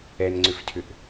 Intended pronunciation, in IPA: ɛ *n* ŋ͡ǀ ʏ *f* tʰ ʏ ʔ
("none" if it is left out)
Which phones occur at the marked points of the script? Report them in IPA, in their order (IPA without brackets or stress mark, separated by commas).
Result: n, f